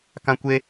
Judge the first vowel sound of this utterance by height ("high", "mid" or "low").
low